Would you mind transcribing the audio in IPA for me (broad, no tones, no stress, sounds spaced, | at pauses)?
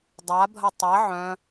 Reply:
dˤ a bʱ ɐ tˤ ɐ ʕ œ̃